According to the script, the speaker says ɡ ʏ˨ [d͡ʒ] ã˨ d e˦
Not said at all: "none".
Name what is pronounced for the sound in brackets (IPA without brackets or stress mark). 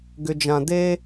d͡ʒ